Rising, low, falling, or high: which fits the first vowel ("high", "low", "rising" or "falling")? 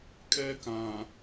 high